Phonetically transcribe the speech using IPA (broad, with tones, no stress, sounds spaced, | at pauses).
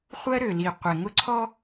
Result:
χʷ ɜ˦ ɾ ø˨ l i˨ qʷ e˨ ŋ ʊ˦ ǀʰ ɔ˦